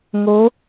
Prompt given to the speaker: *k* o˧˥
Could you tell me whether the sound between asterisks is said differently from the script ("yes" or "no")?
yes